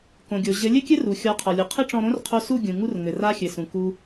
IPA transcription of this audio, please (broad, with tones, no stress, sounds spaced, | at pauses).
k õ˨ ɡʲ o˨ ʑ ɘ˨˦ lʲ ɘ˦ kʲ ɘ˦ r u˨ xʲ ɔ˨˦ qʰ ɔ˨ lʲ u˨ qʰ ɘ˦ ʈ͡ʂ ɔ̃˧ ɾ õ˦ r qʰ o˧ s u˦˨ ɡʲ ũ˨ ŋ u˧ r ŋ ɘ˨ r a˧ xʲ ɘ˨ s ũ˨ k u˦